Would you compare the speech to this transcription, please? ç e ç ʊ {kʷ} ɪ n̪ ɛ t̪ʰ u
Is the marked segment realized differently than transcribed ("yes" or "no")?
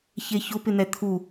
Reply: yes